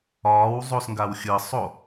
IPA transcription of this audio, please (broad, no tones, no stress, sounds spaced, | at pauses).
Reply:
ɒː w zˤ o s ŋ ɡ a w xʲ ɯ sˤ o